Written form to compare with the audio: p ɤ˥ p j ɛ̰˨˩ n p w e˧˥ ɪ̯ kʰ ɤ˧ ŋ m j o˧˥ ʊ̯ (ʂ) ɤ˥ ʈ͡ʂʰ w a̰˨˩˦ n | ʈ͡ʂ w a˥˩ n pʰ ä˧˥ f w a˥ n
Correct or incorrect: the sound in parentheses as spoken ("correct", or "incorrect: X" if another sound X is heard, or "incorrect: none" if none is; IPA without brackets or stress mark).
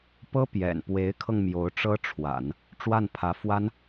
incorrect: ʈ͡ʂ